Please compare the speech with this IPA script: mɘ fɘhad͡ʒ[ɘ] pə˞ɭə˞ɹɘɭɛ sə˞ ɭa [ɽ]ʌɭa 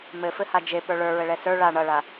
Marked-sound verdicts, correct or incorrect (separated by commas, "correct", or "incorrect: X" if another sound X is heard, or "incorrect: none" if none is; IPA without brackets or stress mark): incorrect: e, incorrect: ɳ